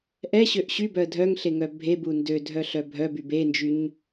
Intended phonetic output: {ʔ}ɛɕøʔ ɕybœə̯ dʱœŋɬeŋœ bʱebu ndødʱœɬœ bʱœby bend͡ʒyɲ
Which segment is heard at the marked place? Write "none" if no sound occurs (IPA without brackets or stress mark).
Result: ʔ